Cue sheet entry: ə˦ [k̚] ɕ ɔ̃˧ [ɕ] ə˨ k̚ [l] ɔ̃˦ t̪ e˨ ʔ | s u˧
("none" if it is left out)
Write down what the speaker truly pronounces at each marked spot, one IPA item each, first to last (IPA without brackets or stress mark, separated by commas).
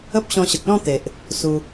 p̚, ɕ, l